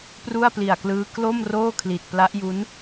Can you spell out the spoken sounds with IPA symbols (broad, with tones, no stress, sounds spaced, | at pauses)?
p r u˥˩ a̯ p l i˨˩ a̯ k l ɯː˦˥ k l o˥˩ m r oː˥˩ kʰ l i˨˩ t̚ p l a˦˥ ʔ j u˦˥ n